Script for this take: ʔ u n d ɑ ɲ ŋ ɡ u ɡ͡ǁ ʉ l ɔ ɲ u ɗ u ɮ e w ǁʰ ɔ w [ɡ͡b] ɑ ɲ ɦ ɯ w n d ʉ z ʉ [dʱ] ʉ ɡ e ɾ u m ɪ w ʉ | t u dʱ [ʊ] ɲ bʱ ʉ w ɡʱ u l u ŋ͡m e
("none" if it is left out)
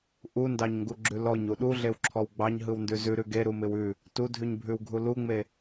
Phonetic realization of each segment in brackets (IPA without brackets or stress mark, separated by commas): ɡ͡b, ɾ, ʉ